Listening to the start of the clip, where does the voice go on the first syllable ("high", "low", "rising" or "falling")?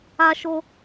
high